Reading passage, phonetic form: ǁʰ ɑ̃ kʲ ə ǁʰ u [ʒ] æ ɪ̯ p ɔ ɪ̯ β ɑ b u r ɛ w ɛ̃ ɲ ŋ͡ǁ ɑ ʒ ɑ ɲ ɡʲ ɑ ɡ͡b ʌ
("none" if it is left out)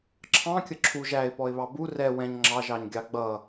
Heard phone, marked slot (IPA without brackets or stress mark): ʒ